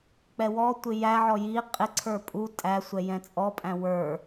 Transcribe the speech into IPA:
k͡pɛwɔtʷɪ jæʕɔ ji qʼɪǀʰə˞ pʼu tʼæsʷɛ jɛ̃t͡sʼɔpʼæ̃ wə˞

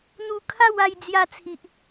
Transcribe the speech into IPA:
n̪u˧kʰa˥˧w a˧j d͡zja˧t͡sʰi˨ʔ

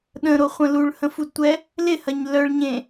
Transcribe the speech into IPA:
ɗə̃ɾoχʷə̃ luɭhə̃fudtʷɛ | lɪhɐɲ lœɭɲẽ

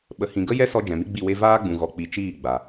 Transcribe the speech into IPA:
ɓə˨hĩ˨ ɡə˦ jɛ˦sɔ˧ d͡ʒɛ̃˨mi˦ɡ͡bi˦˨we˦ vaː˦ɡ͡bũ˨ ɣɔ˨k͡pi˨ t͡ʃiː˦˨ɡ͡ba˨

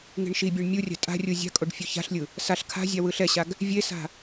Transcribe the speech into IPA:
ŋi̤ɳʃibʲɛɳ mʲurʲa̤ tʼa̤rʲu zʲa̤kʼoɖ fʲuça̤ɬlʲɯ | saɬ kʰa̤zʲa wɯɬɛɕaɡ | vʲesa̤

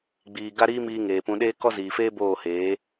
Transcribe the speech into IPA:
ɡ͡biː˧ ɡa˦ɾiː˦miː˧ ŋeː˨pũ˧ɗeː˦ kɔ˦ziː˨feː˦ boː˦˨heː˨˦

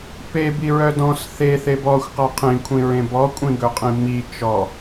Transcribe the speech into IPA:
pebi ɹœdɔ̃s θe θebɔxʷqa qʰĩkʷʰĩɹẽ bɔkʷʼĩɡɵ qʼĩmi t͡ʃɔ

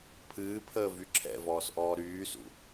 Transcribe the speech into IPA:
pʰɨːpʰəː vyǁʰɛ̰vɔːs ʔɔːɾyːsṵ

